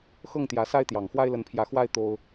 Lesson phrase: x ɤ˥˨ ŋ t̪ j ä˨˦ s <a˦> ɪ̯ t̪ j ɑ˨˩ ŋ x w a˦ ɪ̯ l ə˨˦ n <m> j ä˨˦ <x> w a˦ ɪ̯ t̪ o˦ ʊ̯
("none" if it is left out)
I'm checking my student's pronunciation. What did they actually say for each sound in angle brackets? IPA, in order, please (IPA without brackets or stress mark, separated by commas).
a˦, pʰ, x